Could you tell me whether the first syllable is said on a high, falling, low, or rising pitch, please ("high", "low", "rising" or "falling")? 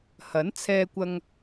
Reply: rising